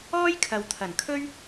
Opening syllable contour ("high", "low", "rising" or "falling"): high